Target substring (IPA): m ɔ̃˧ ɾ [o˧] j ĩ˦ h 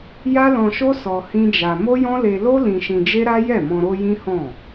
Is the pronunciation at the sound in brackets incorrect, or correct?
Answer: correct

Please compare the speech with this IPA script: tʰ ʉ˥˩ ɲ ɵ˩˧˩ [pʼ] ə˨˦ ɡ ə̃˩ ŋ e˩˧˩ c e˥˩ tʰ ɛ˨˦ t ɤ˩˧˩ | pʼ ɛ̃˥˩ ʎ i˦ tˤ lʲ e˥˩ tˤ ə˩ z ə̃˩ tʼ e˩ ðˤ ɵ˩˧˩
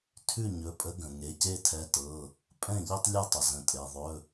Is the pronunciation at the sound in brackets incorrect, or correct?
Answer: correct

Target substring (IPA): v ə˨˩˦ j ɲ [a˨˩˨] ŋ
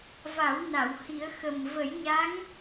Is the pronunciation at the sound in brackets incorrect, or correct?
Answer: incorrect: a˧˥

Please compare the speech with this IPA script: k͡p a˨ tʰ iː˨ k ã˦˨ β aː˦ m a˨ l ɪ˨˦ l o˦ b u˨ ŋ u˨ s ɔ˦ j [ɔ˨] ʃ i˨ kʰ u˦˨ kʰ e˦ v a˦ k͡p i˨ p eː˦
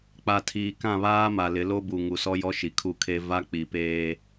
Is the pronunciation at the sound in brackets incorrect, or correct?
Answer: incorrect: ɔ˦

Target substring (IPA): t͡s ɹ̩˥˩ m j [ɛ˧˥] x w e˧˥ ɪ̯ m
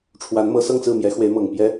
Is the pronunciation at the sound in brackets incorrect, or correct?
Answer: correct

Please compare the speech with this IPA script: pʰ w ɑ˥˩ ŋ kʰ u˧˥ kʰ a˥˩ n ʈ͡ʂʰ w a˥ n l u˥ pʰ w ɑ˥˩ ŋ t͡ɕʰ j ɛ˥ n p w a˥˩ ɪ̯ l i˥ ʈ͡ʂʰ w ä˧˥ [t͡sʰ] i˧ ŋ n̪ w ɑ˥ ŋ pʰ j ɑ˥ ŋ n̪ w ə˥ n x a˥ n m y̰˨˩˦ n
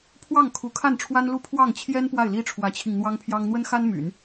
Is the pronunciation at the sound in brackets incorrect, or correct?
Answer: incorrect: t͡ɕʰ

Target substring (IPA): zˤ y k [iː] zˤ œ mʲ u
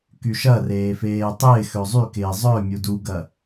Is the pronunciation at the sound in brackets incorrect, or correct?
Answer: incorrect: ɪː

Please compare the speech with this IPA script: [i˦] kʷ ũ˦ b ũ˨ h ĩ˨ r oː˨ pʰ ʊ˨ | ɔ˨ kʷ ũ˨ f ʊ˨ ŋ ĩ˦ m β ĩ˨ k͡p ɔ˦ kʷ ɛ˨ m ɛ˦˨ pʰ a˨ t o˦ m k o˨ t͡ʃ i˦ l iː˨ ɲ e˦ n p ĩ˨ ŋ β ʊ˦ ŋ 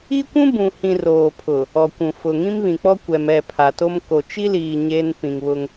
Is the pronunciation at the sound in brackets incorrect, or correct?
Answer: correct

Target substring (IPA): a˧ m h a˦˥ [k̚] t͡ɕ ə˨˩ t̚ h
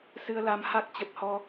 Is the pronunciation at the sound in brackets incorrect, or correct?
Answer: correct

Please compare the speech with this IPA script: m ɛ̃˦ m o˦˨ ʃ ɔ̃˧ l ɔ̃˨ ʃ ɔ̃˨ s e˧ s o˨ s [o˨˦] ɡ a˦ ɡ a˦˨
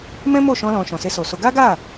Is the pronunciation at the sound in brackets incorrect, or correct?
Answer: incorrect: o˧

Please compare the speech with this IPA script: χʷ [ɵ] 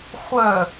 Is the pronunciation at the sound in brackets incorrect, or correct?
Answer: incorrect: œ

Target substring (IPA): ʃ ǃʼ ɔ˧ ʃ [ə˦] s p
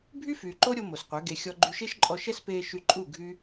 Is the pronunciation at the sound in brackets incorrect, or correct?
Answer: incorrect: ɛ˦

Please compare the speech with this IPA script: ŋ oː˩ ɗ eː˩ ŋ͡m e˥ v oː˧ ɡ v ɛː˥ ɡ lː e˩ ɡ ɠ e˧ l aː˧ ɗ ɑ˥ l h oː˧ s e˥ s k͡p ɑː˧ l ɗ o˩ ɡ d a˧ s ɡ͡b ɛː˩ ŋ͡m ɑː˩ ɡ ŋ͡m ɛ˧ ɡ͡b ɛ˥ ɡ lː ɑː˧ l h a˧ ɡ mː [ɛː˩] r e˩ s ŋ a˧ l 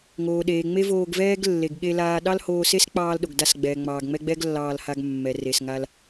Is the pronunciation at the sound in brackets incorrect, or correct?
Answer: incorrect: ɛ˩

